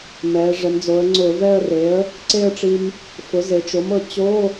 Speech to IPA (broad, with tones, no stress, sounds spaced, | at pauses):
m ɛ˩˧ ʐ ɛ˩˧ m d͡z o˩˧ ə̯ ŋ͡ǀ ʊ˧˩˧ v ɛ˥˧ ə̯ r e˩˥ ə̯ | ǀ e˥˧ ə̯ ʈ͡ʂ i˧ m | f ʊ˩˥ z e˩˧ t͡ʃ o˩˥ m ɤ˩˧ t͡ɕ o˧˥˧